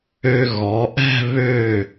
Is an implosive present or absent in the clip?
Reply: absent